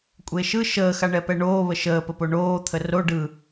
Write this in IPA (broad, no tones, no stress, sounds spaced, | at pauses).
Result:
kʷʼ e ʃ ɯ ʃ əː x a ɳ ɛ p ɛ ɳ oː β ə ʃ əː p ə p o ɳ oː t̪ʰ ə r o ɖ ɯ